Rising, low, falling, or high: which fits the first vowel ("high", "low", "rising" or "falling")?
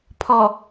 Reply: low